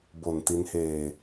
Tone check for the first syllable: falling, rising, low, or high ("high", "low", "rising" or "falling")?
low